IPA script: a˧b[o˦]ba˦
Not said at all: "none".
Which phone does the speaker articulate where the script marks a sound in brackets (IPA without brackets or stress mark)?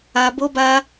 o˦